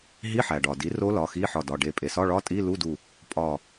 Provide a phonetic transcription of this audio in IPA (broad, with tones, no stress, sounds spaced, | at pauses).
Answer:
ɦ i˧˥˧ ħ æ˩ ɖ ɒ˩ d i˩˥ r o˦˥ l ɒ˩˧˩ x i˧˥˧ ħ ɒ˧˩ d ɒ˩˧˩ ɖ e˧˩ pʼ e˩ s ɒ˧˥˧ ɭ ɒ˧˥˧ tʼ i˧˥˧ l u˧˥˧ d u˧˩ | pʼ ɒ˧˩